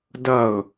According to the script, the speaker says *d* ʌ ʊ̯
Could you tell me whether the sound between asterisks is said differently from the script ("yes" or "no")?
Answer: no